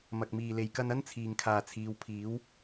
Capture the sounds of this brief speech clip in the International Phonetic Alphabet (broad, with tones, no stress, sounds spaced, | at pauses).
m ɐ˨ k̚ m iː˨ l e˨ j k ɐ˧ n ɐ˥ n t͡sʰ iː˨ ŋ kʰ aː˨ t͡sʰ iː˨˧ w pʰ iː˨˥ w